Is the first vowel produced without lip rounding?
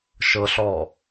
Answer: yes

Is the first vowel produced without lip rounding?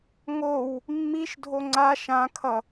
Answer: no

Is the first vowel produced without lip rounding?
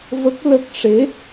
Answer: yes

